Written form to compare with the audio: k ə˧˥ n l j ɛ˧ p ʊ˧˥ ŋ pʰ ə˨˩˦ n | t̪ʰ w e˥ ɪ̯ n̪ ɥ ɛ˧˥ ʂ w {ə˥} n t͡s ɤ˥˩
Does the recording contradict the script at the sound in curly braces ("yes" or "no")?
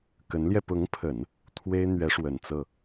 yes